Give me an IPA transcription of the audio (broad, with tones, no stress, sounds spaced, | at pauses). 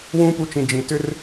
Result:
w ũː˦ p u˧ t͡ʃ ĩ˨ d͡ʒ ĩ˨ t ʏ˦ r